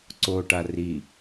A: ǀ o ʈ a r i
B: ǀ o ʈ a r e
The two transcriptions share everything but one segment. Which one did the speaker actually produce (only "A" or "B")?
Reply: A